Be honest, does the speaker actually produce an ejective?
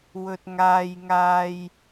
no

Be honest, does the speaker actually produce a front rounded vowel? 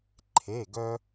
yes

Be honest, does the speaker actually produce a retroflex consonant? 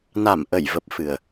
no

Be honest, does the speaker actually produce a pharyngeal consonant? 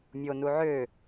yes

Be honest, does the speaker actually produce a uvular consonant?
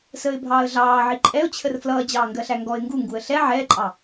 no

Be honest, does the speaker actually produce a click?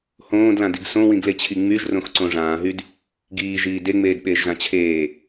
yes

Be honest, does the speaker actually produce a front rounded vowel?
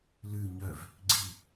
yes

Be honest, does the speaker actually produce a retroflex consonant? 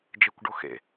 yes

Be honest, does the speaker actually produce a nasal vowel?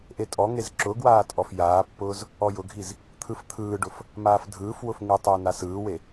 no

